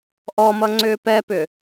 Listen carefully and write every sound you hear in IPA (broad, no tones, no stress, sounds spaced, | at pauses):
ʔ ɔ m ʌ ŋ͡ǀ ʏː p ɛ p ʏ